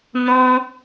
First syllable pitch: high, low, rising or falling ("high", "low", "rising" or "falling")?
high